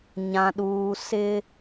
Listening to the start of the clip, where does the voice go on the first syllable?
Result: high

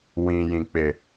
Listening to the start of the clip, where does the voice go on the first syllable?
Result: low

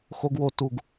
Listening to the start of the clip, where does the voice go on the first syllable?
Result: high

